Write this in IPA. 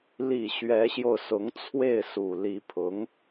l i˨˩ ɕ ɥ ɛ˧˥ ɕ j o˧ ʊ̯ s ʊ˧˥ ŋ t͡sʰ w e˥˩ ɪ̯ s u˨˩ l i˧˥ pʰ ʊ˧˥ ŋ

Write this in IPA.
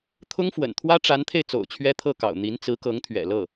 t̪ʰ ʊ˥ ŋ f w ə̰˨˩ n t̪ʰ w ä˥ ʈ͡ʂ a˧˥ n t̪ʰ e˧ ɪ̯ t͡s o̰˨˩ ʊ̯ t͡ɕʰ ɥ ɛ˥ t̪ʰ ɤ˥˩ k ɑ̰˨˩ ʊ̯ n̪ i˧˥ n t͡s ɹ̩˧˥ k ɤ˧˥ ŋ t̪ʰ ɥ ɛ̰˨˩ l ɤ˥˩

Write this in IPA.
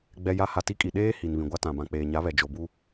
ɡ͡b ɛ˨ j a˨˦ h a˨ t i˦ kʼ i˨ ɗ eː˦ h i˨ n β ĩ˨ ɡʷ a˦ t ã˨ b ã˨ k͡p eː˨ ɲ a˨˦ β ɛ˨ d͡ʒ o˨ b u˦

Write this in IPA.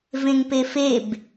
v ẽ ŋ p e f e b

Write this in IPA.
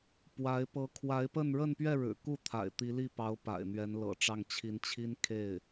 p w a˧˥ ɪ̯ p ɤ˧˥ kʰ w a˧˥ ɪ̯ p ə˥˧ n ɻ ə˥˧ n p ɥ ɛ˥˩ ɻ ɻ̩˨˩ k u˥˩ t̪ʰ a̰˨˩ ɪ̯ t̪ i˧˥ l i˥˩ p ɑ˧˥ ʊ̯ p a̰˨˩ ɪ̯ n̪ ɥ ɛ˧˥ n l ɤ̰˨˩ ʈ͡ʂ ɑ˥˩ ŋ t͡ɕʰ i˧˥ n t͡ɕʰ i˥ n kʰ e˥˩ ɪ̯

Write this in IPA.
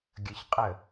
ɡʲ ə ç qʼ ə

